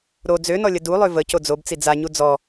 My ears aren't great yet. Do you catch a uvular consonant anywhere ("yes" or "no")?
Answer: no